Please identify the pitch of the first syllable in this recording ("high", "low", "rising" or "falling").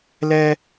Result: high